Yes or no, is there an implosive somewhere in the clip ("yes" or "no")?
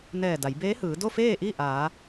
no